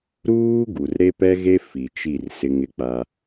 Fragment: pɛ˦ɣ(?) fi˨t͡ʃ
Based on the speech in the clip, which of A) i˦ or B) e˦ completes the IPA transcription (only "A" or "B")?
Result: B